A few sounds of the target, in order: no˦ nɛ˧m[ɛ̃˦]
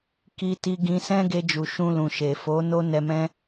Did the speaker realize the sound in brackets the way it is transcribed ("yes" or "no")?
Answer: yes